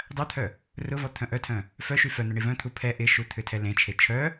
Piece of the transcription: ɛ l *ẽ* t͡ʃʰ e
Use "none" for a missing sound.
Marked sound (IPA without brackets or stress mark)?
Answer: ẽ